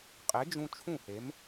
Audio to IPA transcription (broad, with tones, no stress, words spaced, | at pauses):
qʼe˩˥d͡ʒũ˧ t͡ʃʰũ˥˩he˩˥m